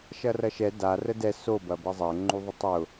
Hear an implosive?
no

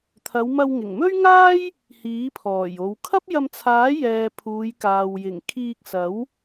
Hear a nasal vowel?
no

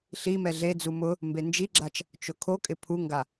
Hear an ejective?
yes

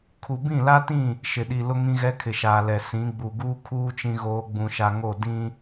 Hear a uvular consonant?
no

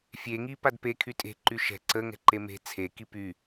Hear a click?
yes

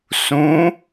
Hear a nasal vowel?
yes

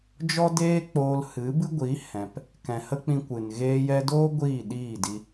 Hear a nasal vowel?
yes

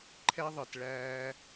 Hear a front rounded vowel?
no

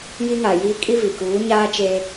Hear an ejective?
yes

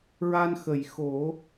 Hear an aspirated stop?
no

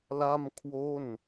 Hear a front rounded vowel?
no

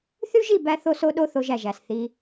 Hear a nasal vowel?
no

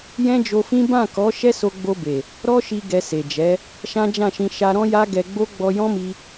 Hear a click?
no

